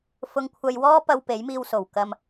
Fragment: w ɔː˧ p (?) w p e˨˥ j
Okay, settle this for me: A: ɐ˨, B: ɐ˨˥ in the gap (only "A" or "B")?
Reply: A